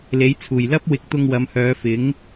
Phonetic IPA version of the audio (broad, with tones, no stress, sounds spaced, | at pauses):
l e˨˥ j t͡sʰ uː˨˩ j l ɐ˥ p̚ w ɪ˨˥ k̚ t̪ ʊ˧ ŋ w ɐ˨˧ m h œː˨˧ f ɪ˨˥ ŋ